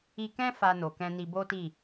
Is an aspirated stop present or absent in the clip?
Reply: absent